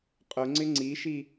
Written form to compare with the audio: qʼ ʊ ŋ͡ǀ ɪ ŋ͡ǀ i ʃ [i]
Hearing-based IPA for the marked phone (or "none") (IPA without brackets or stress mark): i